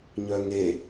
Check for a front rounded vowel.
present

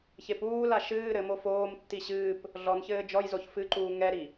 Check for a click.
present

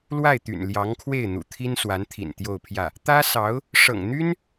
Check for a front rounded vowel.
present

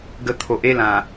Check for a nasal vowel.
present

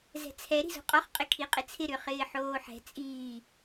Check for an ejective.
present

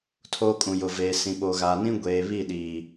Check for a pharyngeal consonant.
absent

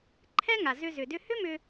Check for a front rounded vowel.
present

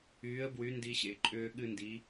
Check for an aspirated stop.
absent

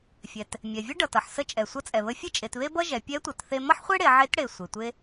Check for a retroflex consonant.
present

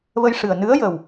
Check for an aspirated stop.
absent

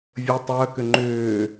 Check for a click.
present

